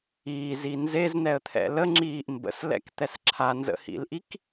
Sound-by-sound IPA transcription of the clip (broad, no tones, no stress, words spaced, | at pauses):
iːzi nzeznɛə̯t̪ʰɛ̰ ləŋ͡ǁiːʔ mbə̰slɛ̰kt̪ɛs ǁʰanzə̰hḭlʔik